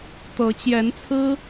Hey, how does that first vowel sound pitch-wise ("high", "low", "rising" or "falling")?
rising